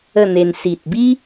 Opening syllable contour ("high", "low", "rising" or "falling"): falling